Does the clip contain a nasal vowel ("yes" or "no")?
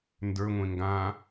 yes